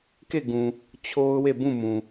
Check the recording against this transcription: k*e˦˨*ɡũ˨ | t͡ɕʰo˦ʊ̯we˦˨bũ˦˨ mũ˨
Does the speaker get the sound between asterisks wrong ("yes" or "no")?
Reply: no